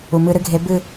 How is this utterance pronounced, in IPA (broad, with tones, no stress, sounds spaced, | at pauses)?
u˩ m ɨ˧˩˧ ɾ ɨ˧˩˧ ɡʱ e˨˦ b ɨ˦˨